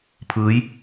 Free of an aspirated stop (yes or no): no